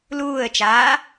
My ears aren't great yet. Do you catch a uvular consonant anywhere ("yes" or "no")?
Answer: no